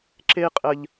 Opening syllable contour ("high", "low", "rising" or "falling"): high